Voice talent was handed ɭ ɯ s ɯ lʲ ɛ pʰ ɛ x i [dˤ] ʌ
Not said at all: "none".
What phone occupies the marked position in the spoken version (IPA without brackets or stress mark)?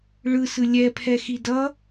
d